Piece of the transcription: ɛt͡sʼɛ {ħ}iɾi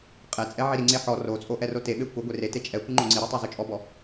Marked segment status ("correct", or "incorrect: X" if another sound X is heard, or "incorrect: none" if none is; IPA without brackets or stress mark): incorrect: ʕ